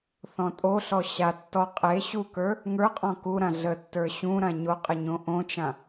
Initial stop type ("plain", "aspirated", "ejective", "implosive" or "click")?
ejective